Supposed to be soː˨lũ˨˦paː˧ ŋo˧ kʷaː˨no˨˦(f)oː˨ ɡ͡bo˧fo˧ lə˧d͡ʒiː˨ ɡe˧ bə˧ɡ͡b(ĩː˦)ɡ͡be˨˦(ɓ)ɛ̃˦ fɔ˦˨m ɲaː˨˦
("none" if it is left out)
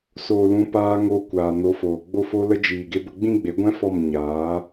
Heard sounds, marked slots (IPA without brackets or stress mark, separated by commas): f, ĩ˦, ɡʷ